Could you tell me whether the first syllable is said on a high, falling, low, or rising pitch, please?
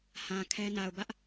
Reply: low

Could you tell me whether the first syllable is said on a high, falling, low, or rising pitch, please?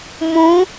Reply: rising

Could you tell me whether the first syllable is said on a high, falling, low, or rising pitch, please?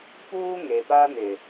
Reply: high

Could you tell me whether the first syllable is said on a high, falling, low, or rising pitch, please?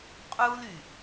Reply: high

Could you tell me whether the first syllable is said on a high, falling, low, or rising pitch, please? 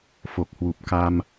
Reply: low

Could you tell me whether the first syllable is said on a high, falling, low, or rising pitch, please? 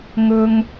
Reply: low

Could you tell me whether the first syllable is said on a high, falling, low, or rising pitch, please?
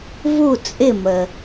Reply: falling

